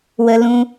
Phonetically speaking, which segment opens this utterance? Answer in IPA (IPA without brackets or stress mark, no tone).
w